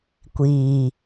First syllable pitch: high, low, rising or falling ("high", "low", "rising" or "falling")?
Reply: low